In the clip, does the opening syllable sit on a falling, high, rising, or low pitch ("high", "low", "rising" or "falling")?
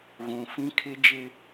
low